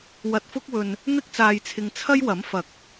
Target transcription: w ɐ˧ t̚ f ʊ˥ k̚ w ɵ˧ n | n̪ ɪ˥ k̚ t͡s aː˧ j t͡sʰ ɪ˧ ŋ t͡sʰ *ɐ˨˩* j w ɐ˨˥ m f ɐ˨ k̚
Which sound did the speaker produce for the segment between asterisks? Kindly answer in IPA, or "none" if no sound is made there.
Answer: ɐ˥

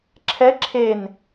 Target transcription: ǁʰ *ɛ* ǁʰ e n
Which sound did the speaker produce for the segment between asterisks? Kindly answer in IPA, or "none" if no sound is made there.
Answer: ɛ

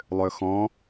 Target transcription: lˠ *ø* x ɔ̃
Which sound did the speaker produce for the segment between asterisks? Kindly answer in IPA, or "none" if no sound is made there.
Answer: ø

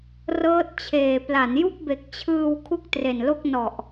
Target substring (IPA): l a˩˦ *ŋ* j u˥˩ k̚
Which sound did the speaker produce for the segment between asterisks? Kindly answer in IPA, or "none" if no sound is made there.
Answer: n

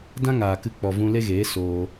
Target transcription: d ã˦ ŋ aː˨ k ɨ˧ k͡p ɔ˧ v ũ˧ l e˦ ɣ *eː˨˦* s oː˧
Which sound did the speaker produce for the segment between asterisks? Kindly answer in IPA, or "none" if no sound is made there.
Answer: eː˨˦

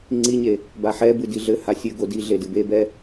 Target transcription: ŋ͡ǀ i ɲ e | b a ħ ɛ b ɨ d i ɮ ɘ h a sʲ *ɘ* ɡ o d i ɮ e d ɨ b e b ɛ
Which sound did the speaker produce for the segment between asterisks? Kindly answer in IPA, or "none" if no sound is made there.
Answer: ɘ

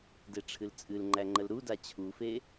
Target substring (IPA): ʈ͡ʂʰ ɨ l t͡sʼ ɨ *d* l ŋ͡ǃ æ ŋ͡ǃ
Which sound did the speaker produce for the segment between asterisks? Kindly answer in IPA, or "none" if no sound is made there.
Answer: none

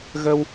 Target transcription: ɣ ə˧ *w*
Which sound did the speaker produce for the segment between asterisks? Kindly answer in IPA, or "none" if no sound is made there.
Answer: w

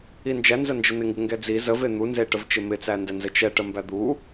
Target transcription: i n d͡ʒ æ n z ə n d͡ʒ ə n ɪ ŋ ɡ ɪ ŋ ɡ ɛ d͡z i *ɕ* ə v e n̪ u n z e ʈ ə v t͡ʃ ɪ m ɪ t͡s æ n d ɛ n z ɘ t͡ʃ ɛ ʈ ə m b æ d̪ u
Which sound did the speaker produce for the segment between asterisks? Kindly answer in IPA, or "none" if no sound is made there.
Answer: z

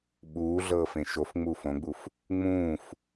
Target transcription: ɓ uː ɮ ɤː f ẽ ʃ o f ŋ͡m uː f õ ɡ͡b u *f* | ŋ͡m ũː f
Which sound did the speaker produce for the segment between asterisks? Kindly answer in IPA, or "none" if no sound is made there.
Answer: f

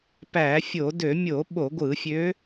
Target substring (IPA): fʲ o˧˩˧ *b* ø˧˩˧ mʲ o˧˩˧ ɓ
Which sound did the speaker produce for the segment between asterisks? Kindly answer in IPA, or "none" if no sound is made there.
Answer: d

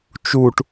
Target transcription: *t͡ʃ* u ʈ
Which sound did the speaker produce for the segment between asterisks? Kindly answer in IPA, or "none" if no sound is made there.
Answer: t͡ʃ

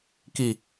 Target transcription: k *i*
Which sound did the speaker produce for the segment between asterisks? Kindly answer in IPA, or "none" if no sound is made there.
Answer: i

